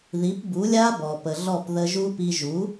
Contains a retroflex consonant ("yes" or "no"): no